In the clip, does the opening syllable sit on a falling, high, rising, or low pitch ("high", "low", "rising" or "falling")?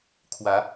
rising